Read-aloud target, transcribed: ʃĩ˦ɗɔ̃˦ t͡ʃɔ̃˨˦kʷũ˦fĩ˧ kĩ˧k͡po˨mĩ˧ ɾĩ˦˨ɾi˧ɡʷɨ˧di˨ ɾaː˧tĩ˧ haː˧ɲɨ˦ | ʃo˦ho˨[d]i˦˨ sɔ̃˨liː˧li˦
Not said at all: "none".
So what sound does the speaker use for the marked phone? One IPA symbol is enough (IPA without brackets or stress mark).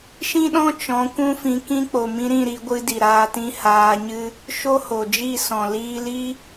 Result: d͡ʒ